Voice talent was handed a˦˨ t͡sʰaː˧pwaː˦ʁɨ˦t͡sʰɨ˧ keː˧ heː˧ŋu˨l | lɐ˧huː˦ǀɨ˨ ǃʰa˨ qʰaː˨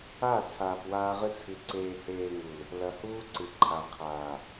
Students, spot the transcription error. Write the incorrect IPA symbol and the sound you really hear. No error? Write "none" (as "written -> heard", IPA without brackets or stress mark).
k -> ǀ